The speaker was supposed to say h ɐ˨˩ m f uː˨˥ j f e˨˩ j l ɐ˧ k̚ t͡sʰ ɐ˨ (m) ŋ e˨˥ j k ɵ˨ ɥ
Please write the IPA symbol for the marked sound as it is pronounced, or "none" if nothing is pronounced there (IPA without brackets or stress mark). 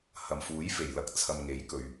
m